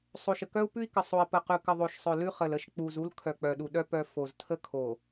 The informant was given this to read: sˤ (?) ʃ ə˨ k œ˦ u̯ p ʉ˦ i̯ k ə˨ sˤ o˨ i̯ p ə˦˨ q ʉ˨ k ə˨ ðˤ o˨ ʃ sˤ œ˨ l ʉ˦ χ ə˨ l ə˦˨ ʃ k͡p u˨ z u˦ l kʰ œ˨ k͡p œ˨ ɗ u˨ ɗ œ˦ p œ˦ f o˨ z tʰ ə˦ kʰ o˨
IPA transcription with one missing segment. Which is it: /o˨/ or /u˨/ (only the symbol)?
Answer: o˨